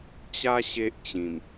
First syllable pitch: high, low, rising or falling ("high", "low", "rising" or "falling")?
high